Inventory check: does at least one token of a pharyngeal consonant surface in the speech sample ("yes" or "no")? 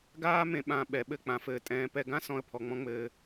no